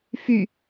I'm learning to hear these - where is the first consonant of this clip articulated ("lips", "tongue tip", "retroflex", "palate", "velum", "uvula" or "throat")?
lips